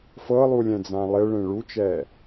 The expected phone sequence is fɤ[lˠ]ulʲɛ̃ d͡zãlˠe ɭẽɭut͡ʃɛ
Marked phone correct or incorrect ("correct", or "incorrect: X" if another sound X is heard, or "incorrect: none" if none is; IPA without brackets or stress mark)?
correct